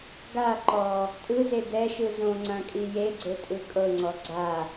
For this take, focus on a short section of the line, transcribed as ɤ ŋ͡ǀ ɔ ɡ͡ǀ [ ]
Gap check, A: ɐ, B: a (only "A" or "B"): B